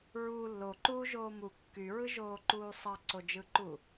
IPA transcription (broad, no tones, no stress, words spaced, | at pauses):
ɹuː lːoǃuːʒoː mu kːyɹɯʒoːǃuː sˤɑǀod͡ʒɯǃu